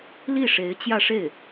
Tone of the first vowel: falling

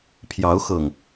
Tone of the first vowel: rising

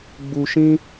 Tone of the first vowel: low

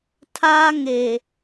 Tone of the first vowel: high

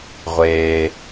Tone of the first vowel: low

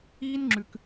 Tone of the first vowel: high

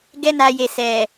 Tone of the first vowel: high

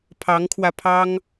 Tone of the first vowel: rising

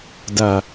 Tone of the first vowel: low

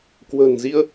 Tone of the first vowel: low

